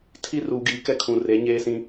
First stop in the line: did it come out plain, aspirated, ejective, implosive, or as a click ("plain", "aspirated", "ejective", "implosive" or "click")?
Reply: aspirated